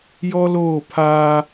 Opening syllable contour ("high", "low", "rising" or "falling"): high